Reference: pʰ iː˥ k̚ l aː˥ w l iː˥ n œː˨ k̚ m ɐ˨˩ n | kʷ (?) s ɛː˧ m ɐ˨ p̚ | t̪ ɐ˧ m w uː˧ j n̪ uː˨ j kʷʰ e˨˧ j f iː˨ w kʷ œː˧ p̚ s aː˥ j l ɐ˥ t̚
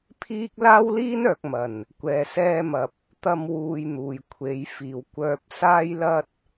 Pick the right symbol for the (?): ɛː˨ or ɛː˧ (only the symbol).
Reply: ɛː˨